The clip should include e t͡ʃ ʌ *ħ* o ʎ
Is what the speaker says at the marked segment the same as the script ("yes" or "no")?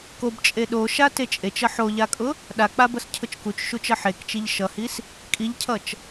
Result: yes